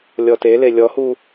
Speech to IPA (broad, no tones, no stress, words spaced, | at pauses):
lʲɔtele lʲɔhu